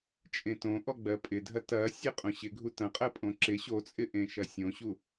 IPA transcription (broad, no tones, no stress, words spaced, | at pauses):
t͡ʃʼẽtõʔɔ ɡ͡bɜpʼɪdʱɐ tɐ sʲeqʼõɕɪ ɡʱutɐ̃ qʼɜpʼõǁɪ ɕot͡sʼɪʔẽ ʃɐsʲõɕu